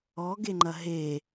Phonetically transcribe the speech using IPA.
ɔɡeŋ͡ǃɐ ɦe

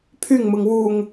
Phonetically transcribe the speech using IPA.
pʰyŋmɯŋ wuŋ

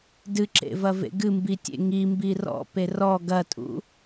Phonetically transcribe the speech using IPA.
dɨǁḛvɐvḛ ɡɨmbitʲḛ ŋimbi rɔ̰pe rɔ ɡɐtʼṵ

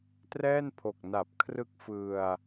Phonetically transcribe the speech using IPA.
trɛː˥˩npʰo˨˩k̚na˨˩p̚ kʰrɯ˦˥k̚ fɯ˧a̯

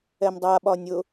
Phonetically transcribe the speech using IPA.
ɛmdˤa ɓɒnʲʊ

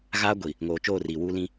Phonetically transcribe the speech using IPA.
ɣaː˦ɡʷi˨ | ŋoː˨ t͡ʃoː˦˨ riː˨wuː˦lĩ˦

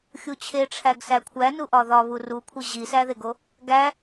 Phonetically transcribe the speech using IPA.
xʲut͡ɕʰeʈ͡ʂʰæɡ sækʷʰænu ʔɒðɒβu rukʷʰi ʑisæðeɡo | ɡæ

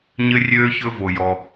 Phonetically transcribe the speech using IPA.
ɲɘ˥rʲøː˥çɵ˥ vo˥jɔ˥

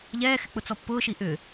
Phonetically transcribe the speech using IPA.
ʎɛːxɪ k͡pʊt͡sɔpːʊːʃi ʔʏ

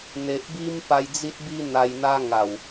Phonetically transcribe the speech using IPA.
n̪e˨ʔbi˦m pa˧jd͡zi˦t̚bi˦ n̪a˧jn̪a˦ ŋa˨˩w

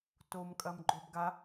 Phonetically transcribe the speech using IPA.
tomkʼɐmɡ͡ǃob ɡa

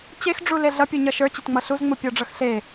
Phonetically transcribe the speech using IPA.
t͡ɕex ɖ͡ʐuleɮʌ pʲuɲʌʃə˞ t͡ɕetŋ͡mʌɬuz ŋ͡mupʲɔɖ͡ʐʌxɬe

